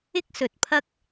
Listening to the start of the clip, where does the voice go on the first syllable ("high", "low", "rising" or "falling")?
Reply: high